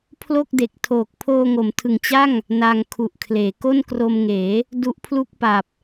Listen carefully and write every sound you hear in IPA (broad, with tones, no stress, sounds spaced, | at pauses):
pʰ l o˥˩ k̚ d e˨˩ k̚ tʰ oː˨˩ k̚ pʰ oː˧ ŋ o˩˦ m tʰ ɯ˨˩ ŋ t͡ɕ a˥˩ ŋ | n a˧ ŋ kʰ u˨˩ ʔ kʰ l eː˩˦ k o˥˩ n k r o˧ m ŋ eː˩˦ | d u˦˥ ʔ pʰ l u˥˩ k̚ p a˨˩ p̚